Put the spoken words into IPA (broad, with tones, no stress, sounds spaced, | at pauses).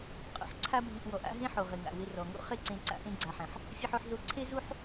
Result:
qʼ o̰˩ ħ ǀʰ a˥ bʱ i˧ ʔ w ɔ˩ ʔ a̰˥ ɦ ẽ˥ ħ o˩ ʁ ɪ˩ ŋ a̰˩ w ɪ˧ r ɔ˩ ŋ o̰˥ χ e˥ ǀ ẽ˧ ǀ a̰˧ ʔ ẽ˥ ɡ͡ǀ a˧ ħ ɛ̃˩ ħ | fʲ ɛ˥ ħ o˥ ħ z o˥ ǀʰ e˥ z u˥ ħ